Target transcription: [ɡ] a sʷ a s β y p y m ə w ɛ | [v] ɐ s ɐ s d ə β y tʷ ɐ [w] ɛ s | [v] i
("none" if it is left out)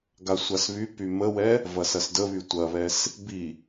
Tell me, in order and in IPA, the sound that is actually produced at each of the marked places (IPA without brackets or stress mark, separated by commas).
ɡ, v, β, b